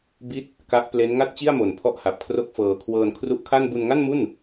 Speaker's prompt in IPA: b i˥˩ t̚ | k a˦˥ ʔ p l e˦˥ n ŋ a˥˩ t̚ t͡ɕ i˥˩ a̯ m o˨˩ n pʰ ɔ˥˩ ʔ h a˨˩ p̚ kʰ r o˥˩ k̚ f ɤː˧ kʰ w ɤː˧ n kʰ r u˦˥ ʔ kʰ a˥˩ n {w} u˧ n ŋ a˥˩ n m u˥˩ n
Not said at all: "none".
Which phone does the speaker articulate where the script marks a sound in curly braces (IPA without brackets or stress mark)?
b